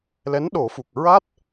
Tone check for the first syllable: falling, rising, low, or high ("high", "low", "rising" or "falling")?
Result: rising